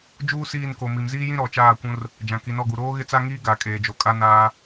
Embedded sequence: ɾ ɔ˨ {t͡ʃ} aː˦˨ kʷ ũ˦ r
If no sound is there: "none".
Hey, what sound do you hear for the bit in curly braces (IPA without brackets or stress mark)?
t͡ʃ